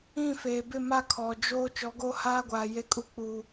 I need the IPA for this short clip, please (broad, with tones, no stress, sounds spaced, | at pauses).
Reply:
ĩ˦˨ f eː˨ b ɪ˦˨ m a˦˨ kʰ ɔ˨ d͡ʒ oː˦ t͡ʃ ɔ˨˦ ɡ o˦ h aː˦ ɡʷ aː˨ j e˦ kʼ u˦ k͡p u˨